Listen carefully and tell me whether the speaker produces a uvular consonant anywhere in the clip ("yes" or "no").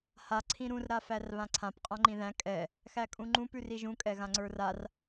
yes